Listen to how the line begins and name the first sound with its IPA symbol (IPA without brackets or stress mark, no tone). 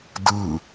d